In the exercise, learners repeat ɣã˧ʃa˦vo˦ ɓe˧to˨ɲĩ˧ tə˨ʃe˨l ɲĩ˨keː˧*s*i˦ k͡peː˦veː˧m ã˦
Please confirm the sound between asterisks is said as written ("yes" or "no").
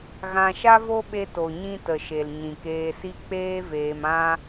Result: yes